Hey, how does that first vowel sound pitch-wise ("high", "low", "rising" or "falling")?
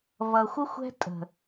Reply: low